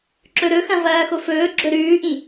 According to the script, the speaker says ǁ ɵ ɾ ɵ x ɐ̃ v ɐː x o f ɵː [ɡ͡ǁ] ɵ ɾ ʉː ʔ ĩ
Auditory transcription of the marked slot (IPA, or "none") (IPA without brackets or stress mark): ɡ͡ǁ